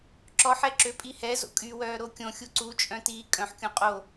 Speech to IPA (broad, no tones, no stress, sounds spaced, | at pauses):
ǁ ɔ ħ ɛ ǁ ø pʼ i h ɛ z o̰ kʼ y w œː ɾ o kʲ õ xʲ u ǀ u t͡ʃʼ œ̃ t iː kʼ œ̃ ħ kʲ õ qʼ o